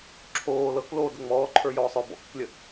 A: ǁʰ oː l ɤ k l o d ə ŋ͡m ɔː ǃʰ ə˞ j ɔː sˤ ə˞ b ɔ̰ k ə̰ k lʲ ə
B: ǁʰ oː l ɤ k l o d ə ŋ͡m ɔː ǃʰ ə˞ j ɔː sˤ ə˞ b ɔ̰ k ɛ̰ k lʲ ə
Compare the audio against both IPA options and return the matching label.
A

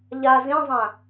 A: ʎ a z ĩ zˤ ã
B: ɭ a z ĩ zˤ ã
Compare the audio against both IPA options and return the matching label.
A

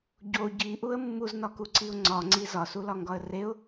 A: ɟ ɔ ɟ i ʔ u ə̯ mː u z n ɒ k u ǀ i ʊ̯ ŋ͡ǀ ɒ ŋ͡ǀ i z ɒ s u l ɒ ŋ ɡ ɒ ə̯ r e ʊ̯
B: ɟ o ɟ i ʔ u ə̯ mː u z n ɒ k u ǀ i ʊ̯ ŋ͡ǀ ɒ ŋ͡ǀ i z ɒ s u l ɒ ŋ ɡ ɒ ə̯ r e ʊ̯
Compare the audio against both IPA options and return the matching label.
B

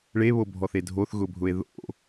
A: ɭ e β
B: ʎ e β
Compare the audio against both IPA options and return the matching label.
A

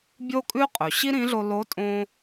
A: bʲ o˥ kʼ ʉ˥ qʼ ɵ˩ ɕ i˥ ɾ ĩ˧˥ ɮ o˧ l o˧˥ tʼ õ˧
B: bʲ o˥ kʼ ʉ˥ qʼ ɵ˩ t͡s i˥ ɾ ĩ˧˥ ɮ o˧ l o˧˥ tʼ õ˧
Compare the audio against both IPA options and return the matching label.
A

